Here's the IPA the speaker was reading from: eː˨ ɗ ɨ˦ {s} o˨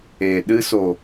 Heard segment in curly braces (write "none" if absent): s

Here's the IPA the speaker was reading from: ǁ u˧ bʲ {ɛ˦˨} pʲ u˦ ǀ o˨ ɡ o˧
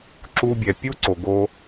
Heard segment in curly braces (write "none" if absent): ɛ˨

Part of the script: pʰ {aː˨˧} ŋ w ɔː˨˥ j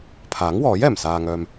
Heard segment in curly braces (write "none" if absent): aː˨˥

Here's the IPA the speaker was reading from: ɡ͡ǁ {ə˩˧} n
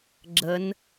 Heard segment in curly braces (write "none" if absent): ə˩˧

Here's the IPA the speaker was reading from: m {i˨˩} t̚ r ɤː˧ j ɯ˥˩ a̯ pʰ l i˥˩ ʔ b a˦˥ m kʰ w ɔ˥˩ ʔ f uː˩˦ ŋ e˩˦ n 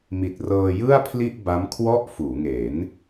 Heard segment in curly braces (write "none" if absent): i˨˩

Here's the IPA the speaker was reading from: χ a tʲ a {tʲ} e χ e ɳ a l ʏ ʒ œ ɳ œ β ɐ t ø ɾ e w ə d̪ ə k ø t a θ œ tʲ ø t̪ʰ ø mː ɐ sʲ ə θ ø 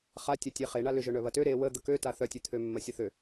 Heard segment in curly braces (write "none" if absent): tʲ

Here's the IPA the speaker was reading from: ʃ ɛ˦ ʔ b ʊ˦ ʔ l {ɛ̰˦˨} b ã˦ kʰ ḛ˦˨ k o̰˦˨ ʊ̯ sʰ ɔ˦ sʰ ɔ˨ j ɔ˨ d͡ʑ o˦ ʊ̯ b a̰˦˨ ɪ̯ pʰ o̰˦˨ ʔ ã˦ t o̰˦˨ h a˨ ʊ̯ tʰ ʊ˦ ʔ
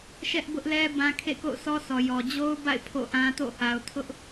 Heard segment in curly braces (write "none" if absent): ɛ˦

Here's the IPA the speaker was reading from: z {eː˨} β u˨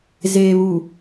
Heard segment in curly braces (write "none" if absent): eː˨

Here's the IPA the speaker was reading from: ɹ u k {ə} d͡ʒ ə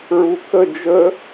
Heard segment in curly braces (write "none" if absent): ə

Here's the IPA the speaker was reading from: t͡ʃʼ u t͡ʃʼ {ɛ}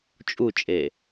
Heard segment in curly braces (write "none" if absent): e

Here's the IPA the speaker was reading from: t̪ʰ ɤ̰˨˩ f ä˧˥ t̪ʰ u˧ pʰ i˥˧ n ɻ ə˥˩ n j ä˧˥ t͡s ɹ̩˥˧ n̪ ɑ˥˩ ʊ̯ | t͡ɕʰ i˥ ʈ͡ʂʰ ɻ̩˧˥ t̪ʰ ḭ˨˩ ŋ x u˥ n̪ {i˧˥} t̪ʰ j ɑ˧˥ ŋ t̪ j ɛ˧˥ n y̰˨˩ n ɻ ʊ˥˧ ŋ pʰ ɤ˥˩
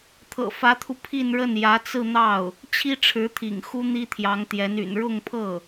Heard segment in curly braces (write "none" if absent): i˥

